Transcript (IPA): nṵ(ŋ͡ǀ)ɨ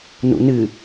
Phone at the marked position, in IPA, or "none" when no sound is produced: n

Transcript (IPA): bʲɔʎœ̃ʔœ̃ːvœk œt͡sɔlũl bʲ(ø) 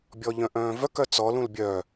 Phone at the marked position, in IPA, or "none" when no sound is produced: œ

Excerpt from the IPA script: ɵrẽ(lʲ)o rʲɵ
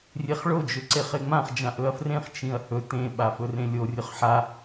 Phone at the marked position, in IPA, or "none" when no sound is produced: lʲ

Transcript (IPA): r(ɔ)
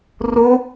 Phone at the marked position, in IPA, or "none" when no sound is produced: o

